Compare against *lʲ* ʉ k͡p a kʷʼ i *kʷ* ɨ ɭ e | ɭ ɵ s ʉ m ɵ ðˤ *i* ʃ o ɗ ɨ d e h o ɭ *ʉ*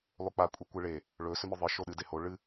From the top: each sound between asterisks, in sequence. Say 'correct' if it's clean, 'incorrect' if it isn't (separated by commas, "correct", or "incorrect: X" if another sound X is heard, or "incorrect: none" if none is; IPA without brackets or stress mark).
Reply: incorrect: lˠ, correct, incorrect: ɨ, incorrect: ɨ